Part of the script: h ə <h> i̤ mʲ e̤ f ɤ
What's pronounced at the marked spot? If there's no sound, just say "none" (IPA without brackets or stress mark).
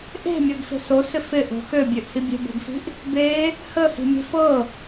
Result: h